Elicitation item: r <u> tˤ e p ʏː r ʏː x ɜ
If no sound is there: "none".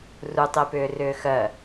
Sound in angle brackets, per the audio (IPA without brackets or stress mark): u